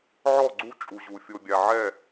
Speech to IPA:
ʕ ɔ˦˨ ɡ͡ǀ u˦ t͡ʃʼ u˨ ʑ u˨ fʲ o˨ bʲ a˨ ʕ ɛ˦˨

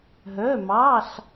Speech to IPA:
ɦ œ˧˥˧ m ɑ˧˥˧ ɬ

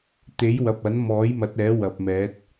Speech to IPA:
t̪ e˨˥ j w ɐ˨ p̚ ɐ˨˥ n m ɔː˨˥ j m ɐ˨˥ t̚ ɛː˨˥ w ɐ˨ p̚ m ɛː˨˥ t̚

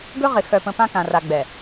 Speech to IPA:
ɡ ɵ˦ ʁ ɪ˨ x œ˨ p ə̃˨ p ã˦ k ã˨ r a˨ ɡ͡b ɛ˨

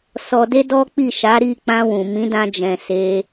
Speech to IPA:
s ɔ˨ d e˧ d ɔ˦ k͡p i˦˨ ʃ a˨˦ ɾ i˦˨ k͡p ã˧ w ũ˨ m ĩ˨˦ d ã˧ d͡ʒ ɛ̃˨ s e˧

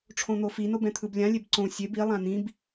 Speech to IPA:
ʈ͡ʂʰ õ n̪ o f i n o b ɛ̃ t̪ʰ ɯ b lʲ ã lʲ e b ǀ õ sʲ e b i lˠ ã n̪ ĩ b

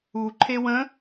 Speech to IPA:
u ǃʰ e w ə̃

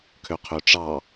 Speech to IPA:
kʰ ø qʰ ø ʈ͡ʂ ɑ

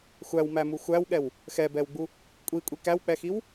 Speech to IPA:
xʷ æ w m æ m u xʷ æ w ɠ ɛ w | x ɛ b ɛ w ɡ͡b u | kʷʼ i kʷʼ i k æ w k͡p ɛ x i w

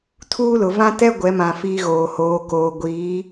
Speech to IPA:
tʰ uː˦ l ʊ˨ v ã˦ t ɛ˦ ɡʷ ɛ˨˦ m ã˨ f iː˦ ɣ oː˨ h oː˨ k oː˨ ɡʷ iː˨˦

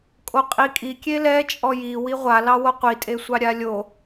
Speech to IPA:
kʼ o qʼ i kʼ i kʲ e l ɛ t͡ʃʼ ɔ j i w i ʁʷ a l ɑ w o qʷ i tʼ e sʷ ɑ ɾʲ a lʲ o

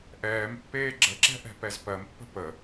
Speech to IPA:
ʔ ɛː m pː eː ɡ͡ǁ ə ǁ ɛ̤ ʔ ɛ̤ p ɛ z p ɜ m pː ə̤ p ə

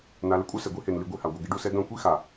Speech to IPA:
n a˧ l ɪ˦ kʷʼ œ˦ s ɛ˨ ɡʷ i˧ h e˨ n l i˧ ɡʷ e˧ h a˨ ɡʷ ɛ˨ ɡ e˧ ɖ u˧ s ɛ˧ ɡ œ̃˦˨ kʷ i˦ x a˨

